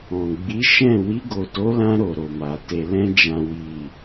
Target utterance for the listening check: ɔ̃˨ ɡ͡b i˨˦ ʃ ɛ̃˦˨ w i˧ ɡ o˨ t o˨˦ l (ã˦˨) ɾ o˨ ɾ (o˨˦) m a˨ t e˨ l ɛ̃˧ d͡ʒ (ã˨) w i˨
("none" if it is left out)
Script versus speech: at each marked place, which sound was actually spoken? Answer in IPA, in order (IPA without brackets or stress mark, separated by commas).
ã˧, o˨, ã˨